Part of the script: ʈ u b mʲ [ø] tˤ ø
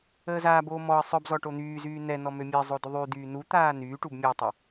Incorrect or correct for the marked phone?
incorrect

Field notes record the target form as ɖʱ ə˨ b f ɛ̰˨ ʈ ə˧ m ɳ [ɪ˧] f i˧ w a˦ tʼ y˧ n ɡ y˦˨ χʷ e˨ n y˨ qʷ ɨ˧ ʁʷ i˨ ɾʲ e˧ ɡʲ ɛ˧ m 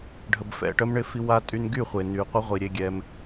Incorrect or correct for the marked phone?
correct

